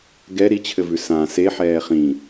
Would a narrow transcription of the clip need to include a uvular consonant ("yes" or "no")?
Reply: yes